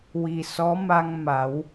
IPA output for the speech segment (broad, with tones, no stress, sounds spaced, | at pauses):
w i˨˩ s ɔ˧˥ m a˧ ŋ m a˨˩˦ w